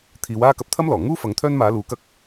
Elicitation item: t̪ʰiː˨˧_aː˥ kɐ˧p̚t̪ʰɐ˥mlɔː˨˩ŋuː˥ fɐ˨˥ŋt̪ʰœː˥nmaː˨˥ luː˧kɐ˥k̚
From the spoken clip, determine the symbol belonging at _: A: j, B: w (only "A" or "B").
B